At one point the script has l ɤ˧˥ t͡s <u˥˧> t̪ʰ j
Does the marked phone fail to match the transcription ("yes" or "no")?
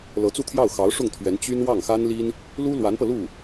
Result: no